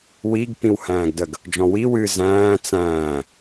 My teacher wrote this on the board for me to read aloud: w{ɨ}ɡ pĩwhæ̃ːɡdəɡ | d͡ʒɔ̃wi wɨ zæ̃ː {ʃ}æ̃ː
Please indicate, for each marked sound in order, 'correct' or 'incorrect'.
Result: incorrect: i, incorrect: t͡s

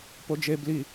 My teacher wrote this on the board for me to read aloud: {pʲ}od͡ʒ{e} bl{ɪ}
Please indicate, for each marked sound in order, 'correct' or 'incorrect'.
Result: incorrect: p, correct, incorrect: i

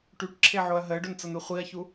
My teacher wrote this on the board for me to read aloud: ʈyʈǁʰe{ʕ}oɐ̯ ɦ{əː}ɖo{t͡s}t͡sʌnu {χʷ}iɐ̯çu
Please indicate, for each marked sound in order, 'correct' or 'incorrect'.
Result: correct, correct, incorrect: n, correct

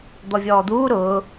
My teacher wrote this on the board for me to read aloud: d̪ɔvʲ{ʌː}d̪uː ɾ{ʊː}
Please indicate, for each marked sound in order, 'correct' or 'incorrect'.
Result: incorrect: ɔː, correct

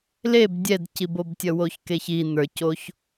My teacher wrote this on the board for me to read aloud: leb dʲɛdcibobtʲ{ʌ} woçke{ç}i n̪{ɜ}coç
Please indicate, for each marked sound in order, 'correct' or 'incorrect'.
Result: correct, correct, incorrect: ə˞

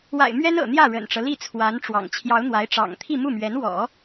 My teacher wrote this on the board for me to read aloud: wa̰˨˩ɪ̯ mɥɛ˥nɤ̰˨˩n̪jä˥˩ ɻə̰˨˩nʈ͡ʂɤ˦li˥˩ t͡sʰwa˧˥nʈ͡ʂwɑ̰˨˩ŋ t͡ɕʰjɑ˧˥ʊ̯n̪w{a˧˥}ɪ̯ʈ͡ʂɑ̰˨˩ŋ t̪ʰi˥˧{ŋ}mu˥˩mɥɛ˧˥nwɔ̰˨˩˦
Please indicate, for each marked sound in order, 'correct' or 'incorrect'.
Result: correct, incorrect: none

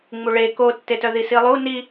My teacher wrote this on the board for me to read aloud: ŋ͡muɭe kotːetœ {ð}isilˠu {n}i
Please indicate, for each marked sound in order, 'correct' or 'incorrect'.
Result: correct, correct

